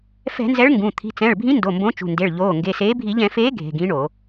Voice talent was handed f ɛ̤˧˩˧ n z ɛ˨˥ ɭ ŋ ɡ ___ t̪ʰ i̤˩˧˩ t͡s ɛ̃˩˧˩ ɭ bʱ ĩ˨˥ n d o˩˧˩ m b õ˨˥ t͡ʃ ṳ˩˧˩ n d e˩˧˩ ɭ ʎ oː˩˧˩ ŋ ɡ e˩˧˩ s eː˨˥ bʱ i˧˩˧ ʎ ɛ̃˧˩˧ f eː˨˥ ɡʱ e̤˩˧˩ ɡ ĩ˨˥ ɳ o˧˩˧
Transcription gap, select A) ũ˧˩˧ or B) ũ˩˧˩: B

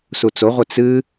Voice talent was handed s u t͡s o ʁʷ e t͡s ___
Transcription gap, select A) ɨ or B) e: A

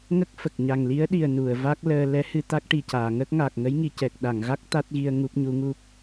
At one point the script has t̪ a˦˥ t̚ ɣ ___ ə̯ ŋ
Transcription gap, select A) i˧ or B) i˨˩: A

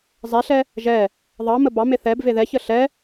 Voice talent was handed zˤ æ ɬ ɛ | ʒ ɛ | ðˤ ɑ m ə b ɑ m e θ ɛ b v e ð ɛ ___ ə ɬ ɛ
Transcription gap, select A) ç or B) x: A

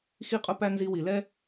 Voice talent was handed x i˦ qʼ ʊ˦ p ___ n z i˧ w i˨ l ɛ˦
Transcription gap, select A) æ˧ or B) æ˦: B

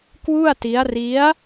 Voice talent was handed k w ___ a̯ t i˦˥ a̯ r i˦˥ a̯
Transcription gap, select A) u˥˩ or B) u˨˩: A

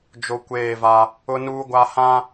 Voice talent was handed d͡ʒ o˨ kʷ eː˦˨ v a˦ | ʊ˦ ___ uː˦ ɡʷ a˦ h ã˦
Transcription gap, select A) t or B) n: B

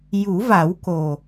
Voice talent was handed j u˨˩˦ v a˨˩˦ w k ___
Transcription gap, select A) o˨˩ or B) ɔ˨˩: A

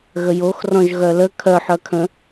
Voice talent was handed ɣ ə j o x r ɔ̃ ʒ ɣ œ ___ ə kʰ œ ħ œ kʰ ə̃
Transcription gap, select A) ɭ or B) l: B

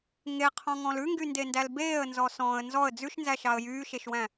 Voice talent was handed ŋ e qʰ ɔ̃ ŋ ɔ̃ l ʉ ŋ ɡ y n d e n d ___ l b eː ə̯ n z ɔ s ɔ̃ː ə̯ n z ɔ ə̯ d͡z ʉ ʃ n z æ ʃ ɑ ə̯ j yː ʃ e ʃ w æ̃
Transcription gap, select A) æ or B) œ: A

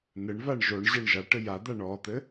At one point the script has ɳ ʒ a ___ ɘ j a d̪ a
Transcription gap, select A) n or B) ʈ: B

